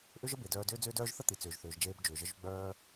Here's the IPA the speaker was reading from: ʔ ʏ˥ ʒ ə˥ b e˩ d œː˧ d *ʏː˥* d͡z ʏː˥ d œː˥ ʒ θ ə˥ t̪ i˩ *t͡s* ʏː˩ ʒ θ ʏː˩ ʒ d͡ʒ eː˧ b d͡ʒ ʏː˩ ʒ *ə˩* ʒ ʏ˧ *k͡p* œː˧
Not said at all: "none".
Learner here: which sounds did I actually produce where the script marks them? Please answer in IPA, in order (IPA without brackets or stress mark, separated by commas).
ʏː˥, t͡s, ə˧, ɡ͡b